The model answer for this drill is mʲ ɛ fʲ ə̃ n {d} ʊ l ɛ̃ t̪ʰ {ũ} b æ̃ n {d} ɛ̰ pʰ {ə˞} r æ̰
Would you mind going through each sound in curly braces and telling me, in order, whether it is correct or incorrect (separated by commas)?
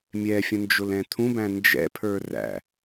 incorrect, correct, incorrect, correct